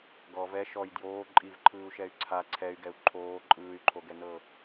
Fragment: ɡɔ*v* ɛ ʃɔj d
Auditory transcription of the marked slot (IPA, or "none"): v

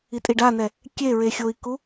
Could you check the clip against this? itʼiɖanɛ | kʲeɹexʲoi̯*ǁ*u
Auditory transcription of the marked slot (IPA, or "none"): k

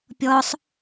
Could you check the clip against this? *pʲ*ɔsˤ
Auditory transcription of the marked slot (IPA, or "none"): pʲ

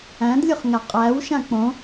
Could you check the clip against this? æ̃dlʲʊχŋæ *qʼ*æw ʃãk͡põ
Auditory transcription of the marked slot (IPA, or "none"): qʼ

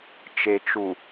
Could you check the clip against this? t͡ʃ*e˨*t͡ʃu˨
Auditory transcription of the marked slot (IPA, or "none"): e˨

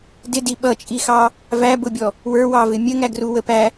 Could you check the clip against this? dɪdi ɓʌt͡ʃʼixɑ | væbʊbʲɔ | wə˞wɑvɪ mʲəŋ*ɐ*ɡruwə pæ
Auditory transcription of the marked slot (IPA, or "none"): æ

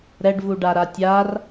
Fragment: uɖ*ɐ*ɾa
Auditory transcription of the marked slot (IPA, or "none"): a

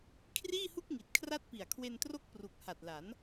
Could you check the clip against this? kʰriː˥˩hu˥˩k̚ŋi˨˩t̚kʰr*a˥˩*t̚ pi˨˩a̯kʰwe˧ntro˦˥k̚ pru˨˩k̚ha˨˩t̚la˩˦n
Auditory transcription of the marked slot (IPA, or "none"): a˦˥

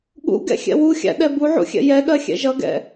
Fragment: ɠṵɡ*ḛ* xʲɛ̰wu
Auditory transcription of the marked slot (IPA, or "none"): ɛ̰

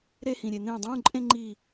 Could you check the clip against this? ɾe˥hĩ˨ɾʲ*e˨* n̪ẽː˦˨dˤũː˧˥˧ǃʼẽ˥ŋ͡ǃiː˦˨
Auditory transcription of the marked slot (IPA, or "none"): e˨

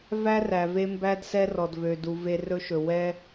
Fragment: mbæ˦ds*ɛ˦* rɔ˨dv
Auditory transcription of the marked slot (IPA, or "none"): ɛ˦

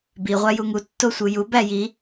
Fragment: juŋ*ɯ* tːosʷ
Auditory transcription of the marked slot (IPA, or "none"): u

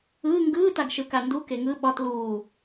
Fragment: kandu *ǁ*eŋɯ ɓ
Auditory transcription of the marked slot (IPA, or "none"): k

